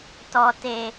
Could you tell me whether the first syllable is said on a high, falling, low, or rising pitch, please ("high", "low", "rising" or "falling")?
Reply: low